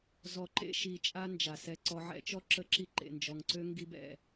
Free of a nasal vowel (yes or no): yes